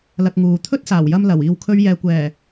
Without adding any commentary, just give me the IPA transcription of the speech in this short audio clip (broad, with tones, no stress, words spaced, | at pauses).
lɐ˧k̚ŋuː˨ t̪ʰɵ˥t̚saː˨˩wjɐ˧m lɐ˨˩w iː˨wkʰɵ˧ɥjɛː˨kʷɛː˨˩